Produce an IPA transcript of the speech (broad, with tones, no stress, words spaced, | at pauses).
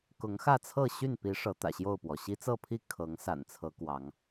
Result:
kʊ˨˦ŋxä˥˨t͡sʰɤ˥˨ ɕy˥˨npi˨˦ ʂɤ˨˦t̪ä̰˨˩ɕjo˥˨ʊ̯pwɔ˩ ɕi˦t͡sɤ˥˨pʰi˥˨ kʰɤ˨˦ŋsa̰˨˩nt͡sʰɤ˨˦ kwɑ˨˦ŋ